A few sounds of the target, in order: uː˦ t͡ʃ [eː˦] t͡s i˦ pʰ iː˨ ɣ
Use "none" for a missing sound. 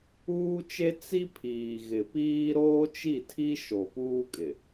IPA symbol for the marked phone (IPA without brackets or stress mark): e˦